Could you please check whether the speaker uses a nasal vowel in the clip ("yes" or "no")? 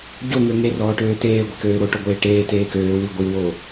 no